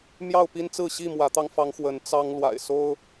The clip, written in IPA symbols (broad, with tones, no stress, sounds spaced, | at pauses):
m j ɑ˥˨ ʊ̯ p i˦ n t͡s ɹ̩˥˨ ɕ i˥˨ m w ä˨˦ t̪ ɑ˧ ŋ f ɑ˨˦ ŋ x w ə˨˦ n t͡s ɑ˦ ŋ l w a̰˨˩ ɪ̯ s o˦ ʊ̯